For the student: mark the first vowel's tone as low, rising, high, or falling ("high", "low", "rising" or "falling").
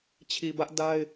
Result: low